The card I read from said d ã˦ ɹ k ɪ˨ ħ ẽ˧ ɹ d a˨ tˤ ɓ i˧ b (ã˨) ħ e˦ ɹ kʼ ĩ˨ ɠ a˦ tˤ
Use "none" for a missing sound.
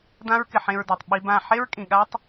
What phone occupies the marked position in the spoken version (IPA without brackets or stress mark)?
ã˦˨